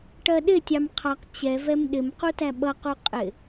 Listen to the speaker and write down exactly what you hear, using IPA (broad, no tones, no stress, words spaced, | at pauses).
ʈɜɗɪtʲɑm qʰɑq t͡ɕɛvɛm ɗɪmqu tæɓʌqu qʼɪ